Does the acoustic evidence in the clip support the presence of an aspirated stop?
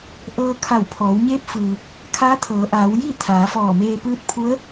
yes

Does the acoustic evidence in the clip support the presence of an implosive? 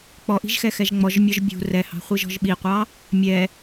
yes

